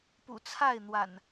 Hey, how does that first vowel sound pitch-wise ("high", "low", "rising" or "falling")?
low